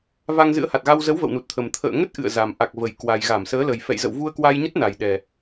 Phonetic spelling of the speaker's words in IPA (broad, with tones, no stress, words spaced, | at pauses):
va˧ŋzɨ̰˧˥ə̯ ha˨˩t̚ɣa˧w zə˨˦w və̰˧˨wnu˨˩t̚t̪ʰə˨˩m t̪ʰə̰ː˧˨ŋə˦˥t̚ ʔɨ̰˧˨ə̯za˨˩m ʔa˨˩k̚və˨˩j kwa˨˩j ɣa˧˩msəː˨˦lə˨˩j fɛ̰˧˨jzə̰˧˨w vu˧ə̯kwa˧jɲə˦˥t̚ na˨˩jɗɛ˨˩